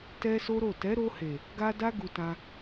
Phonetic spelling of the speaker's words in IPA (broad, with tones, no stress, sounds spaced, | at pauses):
t ɛ˦ s o˦ ɾ o˦˨ t ɛ˨˦ ɾ o˧ h e˨ | ɡ a˦ d a˦ ɡ u˧ t ã˧